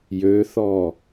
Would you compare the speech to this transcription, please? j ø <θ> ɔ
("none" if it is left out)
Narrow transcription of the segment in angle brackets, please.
θ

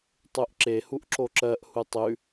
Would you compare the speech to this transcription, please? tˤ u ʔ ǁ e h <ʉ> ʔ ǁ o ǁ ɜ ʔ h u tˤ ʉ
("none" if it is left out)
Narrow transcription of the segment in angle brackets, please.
u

